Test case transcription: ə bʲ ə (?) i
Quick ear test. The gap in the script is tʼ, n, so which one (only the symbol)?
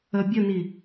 n